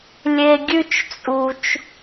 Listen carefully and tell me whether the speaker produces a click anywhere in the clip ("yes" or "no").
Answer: no